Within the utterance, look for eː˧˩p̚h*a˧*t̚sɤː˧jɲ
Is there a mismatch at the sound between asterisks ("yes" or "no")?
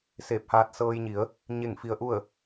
yes